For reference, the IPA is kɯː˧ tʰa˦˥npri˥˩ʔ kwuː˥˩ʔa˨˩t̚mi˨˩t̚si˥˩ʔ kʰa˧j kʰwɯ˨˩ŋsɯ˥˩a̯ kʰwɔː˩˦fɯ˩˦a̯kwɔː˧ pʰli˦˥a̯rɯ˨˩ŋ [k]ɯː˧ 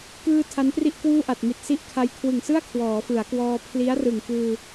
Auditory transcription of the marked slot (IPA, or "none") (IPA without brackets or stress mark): k